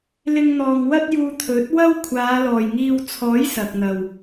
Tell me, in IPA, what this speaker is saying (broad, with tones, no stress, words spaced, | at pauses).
lɪ˧ŋn̪ɔː˨ŋwɐ˥t̚juː˧ t̪ʰɵ˨˥t̚wɐ˥w kʷʰaː˨˧lɔː˨˩jŋiː˧w t͡sʰɔː˨˥j sɐ˨k̚n̪ɐ˨˩w